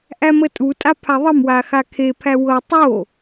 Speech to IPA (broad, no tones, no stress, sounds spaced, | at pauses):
ʔ æ m ə tʼ u tʼ a pʰ a ðˤ ə m w a x a kʰ e pʰ æ w ɤ tˤ o